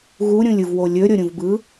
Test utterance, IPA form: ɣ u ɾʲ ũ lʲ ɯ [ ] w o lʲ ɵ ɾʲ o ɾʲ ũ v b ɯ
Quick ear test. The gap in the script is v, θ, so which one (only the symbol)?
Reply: v